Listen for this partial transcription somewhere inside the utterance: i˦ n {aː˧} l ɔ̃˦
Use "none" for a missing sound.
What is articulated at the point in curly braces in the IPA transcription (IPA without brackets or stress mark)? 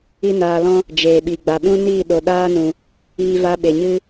aː˧